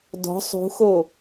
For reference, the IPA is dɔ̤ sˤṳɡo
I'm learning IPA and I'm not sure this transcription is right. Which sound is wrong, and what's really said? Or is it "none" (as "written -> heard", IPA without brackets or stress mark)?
ɡ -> x